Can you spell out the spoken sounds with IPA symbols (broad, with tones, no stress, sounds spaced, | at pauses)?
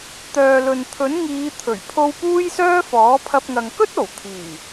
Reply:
t̪ œː˨ l ɵ˨ n t̪ʰ ɵ˨˥ n ŋ iː˨˧ t̪ʰ ɵ˨˩ ɥ pʰ o˧ w p uː˥ j s œː˥ f ɔː˨˥ pʰ ɐ˧ p̚ ŋ ɐ˨ ŋ k ɵ˥ t̚ o˨˩ w t̪ʰ iː˨˩